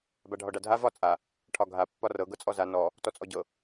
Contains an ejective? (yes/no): yes